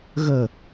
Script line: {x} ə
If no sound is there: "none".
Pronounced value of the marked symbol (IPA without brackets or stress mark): ɣ